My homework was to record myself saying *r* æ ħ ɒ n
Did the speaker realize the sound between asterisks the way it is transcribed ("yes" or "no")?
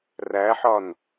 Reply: yes